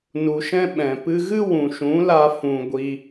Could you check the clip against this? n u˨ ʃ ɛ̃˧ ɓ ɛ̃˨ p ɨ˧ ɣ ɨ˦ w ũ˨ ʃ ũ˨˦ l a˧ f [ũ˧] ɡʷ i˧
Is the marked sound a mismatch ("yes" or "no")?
no